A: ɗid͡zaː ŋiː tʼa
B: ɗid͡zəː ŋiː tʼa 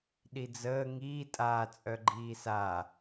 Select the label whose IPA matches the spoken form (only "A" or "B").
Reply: B